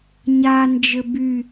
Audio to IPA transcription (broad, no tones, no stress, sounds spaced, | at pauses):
ɲ a n d͡ʒ ɘ b y